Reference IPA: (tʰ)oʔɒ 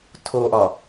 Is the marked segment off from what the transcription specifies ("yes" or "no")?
no